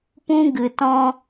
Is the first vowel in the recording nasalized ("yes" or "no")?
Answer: yes